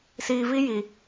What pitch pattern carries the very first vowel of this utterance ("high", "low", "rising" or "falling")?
low